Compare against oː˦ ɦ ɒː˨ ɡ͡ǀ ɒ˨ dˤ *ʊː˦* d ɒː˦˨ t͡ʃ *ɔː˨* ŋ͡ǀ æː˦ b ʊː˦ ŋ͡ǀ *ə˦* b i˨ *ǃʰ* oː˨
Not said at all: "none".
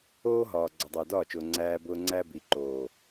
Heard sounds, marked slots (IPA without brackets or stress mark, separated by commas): ʊː˨, ʊː˨, æ˦, ǃ